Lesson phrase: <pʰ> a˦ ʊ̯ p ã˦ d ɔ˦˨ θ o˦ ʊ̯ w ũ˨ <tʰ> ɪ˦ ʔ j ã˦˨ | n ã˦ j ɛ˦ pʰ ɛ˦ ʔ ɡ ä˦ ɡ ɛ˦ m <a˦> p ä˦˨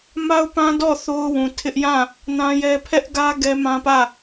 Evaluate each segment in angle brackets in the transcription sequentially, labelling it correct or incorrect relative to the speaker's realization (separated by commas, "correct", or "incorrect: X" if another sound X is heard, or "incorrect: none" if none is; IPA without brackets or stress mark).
incorrect: m, correct, incorrect: ã˦